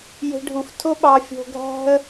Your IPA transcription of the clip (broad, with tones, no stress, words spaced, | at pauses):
je̤˨ɖʱu˩f tʰo˦ɓɑ˨ fʲo̤˨ɡʱæ̤˦ə̯